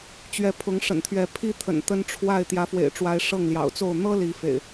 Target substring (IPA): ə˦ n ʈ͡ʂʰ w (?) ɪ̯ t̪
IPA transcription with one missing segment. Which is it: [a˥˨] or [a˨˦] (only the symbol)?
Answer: a˥˨